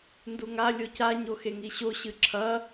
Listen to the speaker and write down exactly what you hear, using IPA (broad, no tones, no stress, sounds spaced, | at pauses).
n d u ŋ a lʲ o c a ɲ o x e ŋ i ɕ o ɕ ɨ ǁʰ ɐ